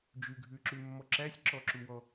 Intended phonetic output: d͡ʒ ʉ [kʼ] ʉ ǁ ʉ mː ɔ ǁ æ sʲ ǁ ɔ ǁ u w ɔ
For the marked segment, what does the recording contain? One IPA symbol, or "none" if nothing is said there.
ɡʱ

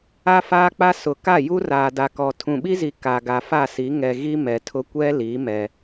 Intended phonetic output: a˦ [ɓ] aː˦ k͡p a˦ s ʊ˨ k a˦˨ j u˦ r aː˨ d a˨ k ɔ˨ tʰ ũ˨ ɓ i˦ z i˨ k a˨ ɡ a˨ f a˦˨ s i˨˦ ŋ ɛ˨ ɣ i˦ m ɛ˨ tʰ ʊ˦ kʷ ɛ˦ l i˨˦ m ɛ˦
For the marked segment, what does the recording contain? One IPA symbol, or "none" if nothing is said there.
f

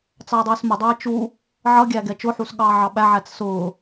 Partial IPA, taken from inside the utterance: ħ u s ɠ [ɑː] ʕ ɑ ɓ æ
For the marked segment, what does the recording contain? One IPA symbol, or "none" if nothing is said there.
ɑː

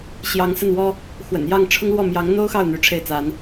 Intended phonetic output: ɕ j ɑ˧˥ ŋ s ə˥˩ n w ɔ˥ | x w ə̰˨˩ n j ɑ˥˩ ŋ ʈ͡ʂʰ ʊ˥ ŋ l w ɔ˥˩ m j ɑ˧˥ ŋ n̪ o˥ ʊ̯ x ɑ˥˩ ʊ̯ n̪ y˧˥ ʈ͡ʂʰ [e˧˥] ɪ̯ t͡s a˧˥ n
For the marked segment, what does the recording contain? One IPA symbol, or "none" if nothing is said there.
e˥˩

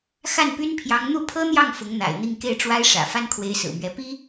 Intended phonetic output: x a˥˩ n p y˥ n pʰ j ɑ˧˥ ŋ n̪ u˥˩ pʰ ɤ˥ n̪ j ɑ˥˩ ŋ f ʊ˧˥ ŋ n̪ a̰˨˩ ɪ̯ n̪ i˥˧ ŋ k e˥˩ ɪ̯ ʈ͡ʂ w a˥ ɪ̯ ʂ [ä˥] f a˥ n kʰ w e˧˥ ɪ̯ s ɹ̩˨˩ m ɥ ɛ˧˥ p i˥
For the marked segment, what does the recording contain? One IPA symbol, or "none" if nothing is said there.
ä̰˨˩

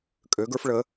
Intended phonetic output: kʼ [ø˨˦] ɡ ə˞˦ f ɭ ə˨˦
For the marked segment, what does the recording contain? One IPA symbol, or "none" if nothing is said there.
ø˨˦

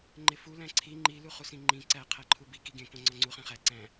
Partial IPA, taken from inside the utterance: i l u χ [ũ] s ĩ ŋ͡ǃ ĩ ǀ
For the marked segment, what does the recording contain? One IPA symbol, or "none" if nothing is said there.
u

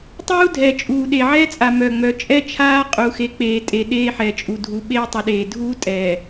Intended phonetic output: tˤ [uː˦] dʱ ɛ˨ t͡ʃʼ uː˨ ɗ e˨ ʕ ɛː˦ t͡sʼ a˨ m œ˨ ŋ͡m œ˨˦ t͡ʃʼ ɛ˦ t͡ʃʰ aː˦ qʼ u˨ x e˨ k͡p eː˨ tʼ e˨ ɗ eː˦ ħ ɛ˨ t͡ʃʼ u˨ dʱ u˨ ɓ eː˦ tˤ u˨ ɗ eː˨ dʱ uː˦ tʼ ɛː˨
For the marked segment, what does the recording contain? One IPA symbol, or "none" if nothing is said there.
uː˦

